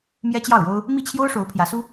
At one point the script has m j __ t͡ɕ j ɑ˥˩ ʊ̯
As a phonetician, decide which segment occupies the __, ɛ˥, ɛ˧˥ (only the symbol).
ɛ˥